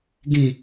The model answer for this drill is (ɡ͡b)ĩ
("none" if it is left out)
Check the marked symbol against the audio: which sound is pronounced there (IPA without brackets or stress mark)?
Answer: ɡ